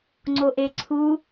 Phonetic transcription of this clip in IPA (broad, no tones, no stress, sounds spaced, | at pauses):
ŋ͡ǀ o ʔ e ǀʰ u